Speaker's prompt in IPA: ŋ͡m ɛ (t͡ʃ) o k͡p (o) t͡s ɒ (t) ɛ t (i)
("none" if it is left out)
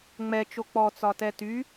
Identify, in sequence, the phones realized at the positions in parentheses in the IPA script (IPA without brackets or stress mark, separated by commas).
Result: t͡ʃ, ɔ, t, y